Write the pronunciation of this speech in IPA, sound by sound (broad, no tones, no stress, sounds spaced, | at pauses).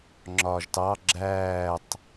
ŋ͡ǁ ɒː ʒ t ɑ ɡ͡ǁ æː tˤ